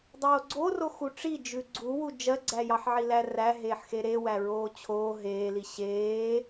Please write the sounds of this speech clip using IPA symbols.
dˤ oː ɡ͡ǀ o r o x u ʈ͡ʂ i d͡ʒ ʉ ɡ͡ǀ u w u d͡ʒ ɜ ɡ͡ǀ æ j ɑ ħ ʕ i l æ r æ ɦ eː ħ x e ɾ e w æ ɹ oː t͡ɕʰ oː ɦ eː l i ɕ eː

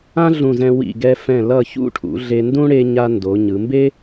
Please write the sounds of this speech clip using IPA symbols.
ã˥ ɮ ũ˧˩ z ɛ̃˧ w ḭ˧˩ ɡ ɛ˧ f ɛ̃˧˩ l ʌ˧˩ ç ṵ˥˧ ʈʰ ṵ˩˧ ɮ e˧ n d ũ˥ ɽ e˧ ɲ a˧ n d o˩˧ ɲ ɯ˩˧ m b e˥

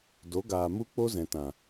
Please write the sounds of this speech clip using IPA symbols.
d o˨˦ ɡ aː˨ m u˦ k͡p o˦ z ɛ̃˨ t ã˨

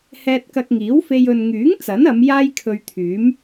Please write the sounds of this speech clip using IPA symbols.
h ɛː˧ t̚ k ɐ˧ k̚ ŋ iː˨˥ w f e˧ j ɵ˨ n ŋ yː˨˥ ŋ t͡s ɐ˨˥ n ɐ˨˧ m j aː˥ j kʰ ɵ˧ ɥ t̪ʰ yː˨˥ m

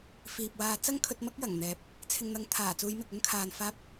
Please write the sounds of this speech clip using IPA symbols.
f iː˨ p̚ w aː˧ t͡s ɐ˥ ŋ kʰ ɵ˧ t̚ m ɐ˥ k̚ j ɐ˨˩ ŋ n̪ ɛː˨˥ p̚ | t͡sʰ ɪ˨ ŋ n̪ ɐ˨˥ ŋ t̪ʰ aː˨˩ t͡s uː˨˧ j m ɪ˨ k̚ ɵ˥ n kʰ aː˨ n f aː˧ p̚

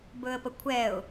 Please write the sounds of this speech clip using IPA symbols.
b ɵ ə̯ p ə kʷʰ ɛ ʊ̯

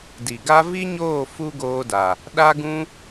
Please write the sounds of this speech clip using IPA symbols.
d i˨ ɡ a˦ v i˦ ɲ oː˦˨ f u˦ ɡ oː˧ d a˨ | ɗ a˦ ɡ ũ˦

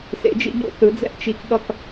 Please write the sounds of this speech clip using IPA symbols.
s ḛ˩˥ d͡ʒ ḭ˩˥ ʎ o̰˧ θ ɯ˩˥ d͡z ɛ̰˥˩ ʔ t͡ʃ i˧ k ɠ ʌ˥˩ k

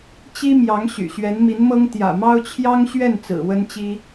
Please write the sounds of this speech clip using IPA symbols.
t͡ɕ i˥ m j ɑ˧˥ ŋ ɕ y̰˨˩ ɕ ɥ ɛ˧˥ n m i˧˥ n m ɤ˥ ŋ t̪ j ä̰˨˩ m ɑ˥ ʊ̯ t͡ɕʰ j ɑ˥ ŋ ɕ ɥ ɛ˥˩ n t͡s ɹ̩˨˩ w ə˥ n t͡ɕ i˥

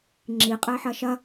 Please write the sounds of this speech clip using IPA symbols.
ŋ͡ǁ i qʼ ɛ ħ ɐ ʃ ɐ

